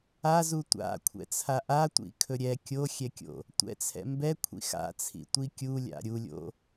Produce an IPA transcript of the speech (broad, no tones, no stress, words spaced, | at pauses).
azu tʷa̰kʷʰɛ̰t͡sʰa ʔatʷḭkʰɵ ɾʲɛ kʲoxʲɛkʲo̰ | tʷɛ̰t͡sʰɛ̰ mbɛkʷʰḭ xa̰t͡sʰḭtʷi kʲulʲa̰ ɾʲulʲo̰